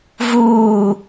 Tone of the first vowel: falling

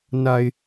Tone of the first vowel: low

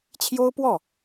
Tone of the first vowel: high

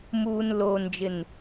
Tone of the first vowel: low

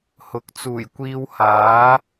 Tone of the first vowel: rising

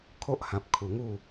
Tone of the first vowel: high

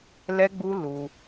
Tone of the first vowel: high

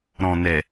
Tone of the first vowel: low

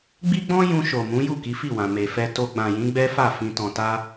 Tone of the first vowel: high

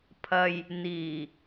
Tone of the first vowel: low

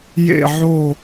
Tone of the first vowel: falling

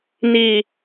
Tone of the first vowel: low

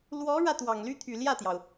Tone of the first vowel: rising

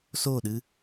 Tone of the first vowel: falling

